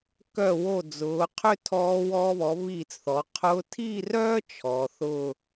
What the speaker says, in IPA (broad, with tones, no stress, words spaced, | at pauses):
kœ˧˩wo˧˩d͡zʊː˩˧qʰʏ˥˧ tʰɔː˧ wɔː˧βɔ˩˧ βiː˧˩t͡sθɔ˩˧ qʰʊ˧tʰi˥˧rœː˥ t͡ʃʰɔ˩˧θʊ˥˧